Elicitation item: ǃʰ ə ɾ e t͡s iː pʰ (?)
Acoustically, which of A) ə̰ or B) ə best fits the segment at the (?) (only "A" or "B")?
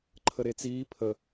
B